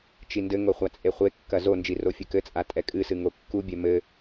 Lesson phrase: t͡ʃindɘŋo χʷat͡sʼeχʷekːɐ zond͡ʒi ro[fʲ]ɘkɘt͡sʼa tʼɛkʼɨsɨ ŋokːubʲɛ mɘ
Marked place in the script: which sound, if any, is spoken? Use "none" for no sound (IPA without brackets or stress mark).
fʲ